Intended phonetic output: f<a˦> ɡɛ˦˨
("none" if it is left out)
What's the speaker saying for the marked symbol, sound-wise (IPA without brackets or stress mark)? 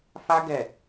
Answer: a˦